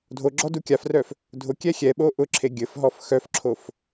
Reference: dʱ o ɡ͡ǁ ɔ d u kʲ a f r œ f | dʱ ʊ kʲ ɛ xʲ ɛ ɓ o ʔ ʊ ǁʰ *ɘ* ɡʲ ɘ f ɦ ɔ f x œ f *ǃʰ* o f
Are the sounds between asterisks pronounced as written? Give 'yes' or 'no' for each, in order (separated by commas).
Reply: no, no